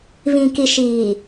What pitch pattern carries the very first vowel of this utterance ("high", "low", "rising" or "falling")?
low